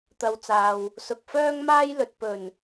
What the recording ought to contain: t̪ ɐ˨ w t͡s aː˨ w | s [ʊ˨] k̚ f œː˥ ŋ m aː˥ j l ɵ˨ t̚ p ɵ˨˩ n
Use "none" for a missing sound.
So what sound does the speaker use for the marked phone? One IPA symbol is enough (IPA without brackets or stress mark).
ʊ˨